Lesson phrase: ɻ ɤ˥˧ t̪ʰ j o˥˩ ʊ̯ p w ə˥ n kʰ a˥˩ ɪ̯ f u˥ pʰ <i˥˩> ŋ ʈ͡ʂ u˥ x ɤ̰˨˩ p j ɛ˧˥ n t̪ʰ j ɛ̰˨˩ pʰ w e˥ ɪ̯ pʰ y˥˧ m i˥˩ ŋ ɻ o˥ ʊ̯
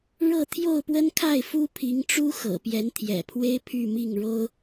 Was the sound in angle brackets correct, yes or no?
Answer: no